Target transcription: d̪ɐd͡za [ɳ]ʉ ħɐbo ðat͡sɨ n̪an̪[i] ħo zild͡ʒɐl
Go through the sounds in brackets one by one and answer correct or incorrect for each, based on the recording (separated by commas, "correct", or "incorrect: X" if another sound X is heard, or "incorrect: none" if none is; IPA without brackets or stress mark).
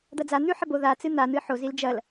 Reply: incorrect: n̪, incorrect: ɨ